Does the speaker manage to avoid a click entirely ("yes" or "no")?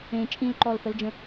no